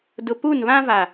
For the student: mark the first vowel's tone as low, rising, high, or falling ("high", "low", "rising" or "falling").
low